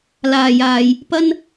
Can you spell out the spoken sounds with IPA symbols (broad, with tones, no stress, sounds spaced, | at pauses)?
l aː˨ j aː˨ j | p ɐ˥ n